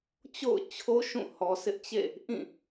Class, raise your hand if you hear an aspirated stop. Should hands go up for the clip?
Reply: yes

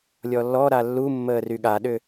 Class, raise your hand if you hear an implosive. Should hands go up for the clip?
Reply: yes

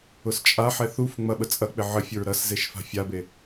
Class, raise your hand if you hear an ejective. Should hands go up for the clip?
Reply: yes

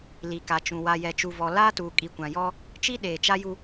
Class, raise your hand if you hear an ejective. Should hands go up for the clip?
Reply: yes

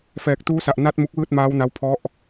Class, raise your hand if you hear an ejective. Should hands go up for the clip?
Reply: no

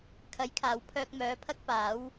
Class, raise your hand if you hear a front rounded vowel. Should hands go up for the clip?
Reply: yes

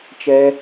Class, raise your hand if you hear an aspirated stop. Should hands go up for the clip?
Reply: no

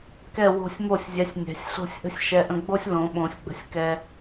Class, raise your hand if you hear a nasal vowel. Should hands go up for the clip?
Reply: yes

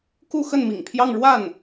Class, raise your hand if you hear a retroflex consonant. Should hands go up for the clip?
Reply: yes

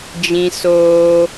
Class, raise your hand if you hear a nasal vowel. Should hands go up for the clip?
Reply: yes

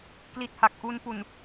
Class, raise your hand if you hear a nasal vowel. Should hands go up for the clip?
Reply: no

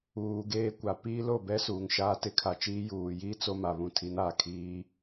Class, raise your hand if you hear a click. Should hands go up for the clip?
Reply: no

